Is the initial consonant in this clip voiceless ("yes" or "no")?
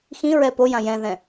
yes